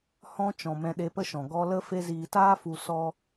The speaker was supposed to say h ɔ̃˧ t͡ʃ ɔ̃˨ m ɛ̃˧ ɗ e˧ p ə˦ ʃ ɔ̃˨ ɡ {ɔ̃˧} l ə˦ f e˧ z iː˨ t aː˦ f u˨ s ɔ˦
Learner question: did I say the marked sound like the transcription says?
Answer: no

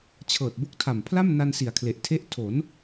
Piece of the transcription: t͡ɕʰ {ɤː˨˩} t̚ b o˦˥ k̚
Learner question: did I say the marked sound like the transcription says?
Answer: yes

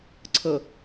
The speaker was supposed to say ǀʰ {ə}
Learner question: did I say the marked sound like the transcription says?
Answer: yes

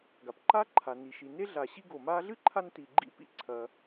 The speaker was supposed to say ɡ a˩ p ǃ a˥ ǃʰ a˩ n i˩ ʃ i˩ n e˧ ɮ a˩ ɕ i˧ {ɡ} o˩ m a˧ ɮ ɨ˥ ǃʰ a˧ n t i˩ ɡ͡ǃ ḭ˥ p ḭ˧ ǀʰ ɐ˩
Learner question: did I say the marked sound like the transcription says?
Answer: yes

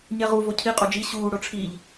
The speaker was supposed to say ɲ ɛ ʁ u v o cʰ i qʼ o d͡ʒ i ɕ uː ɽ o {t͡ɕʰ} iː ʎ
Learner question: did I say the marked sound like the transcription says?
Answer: no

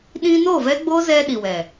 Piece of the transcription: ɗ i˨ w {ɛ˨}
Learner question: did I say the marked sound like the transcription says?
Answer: yes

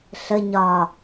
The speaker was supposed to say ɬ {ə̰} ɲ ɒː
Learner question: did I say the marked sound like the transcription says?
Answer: no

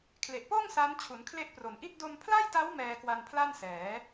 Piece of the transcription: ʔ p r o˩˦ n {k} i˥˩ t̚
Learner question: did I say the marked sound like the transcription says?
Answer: no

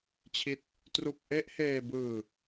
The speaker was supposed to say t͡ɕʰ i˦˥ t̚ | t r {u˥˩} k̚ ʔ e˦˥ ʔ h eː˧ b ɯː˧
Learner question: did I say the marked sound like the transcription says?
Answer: yes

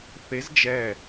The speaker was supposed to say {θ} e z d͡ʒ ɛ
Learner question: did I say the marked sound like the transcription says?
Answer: yes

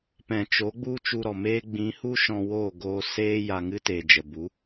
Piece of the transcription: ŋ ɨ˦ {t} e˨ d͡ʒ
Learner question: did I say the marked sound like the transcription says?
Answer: yes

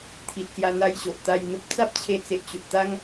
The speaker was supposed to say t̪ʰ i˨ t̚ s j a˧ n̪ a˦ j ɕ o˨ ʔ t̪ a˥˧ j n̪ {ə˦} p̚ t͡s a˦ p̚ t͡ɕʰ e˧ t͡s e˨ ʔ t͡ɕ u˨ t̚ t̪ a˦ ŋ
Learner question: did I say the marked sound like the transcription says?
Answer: yes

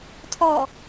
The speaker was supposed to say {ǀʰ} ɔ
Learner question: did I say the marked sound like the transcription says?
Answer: no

